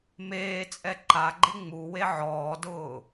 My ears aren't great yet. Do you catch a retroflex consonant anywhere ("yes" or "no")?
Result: no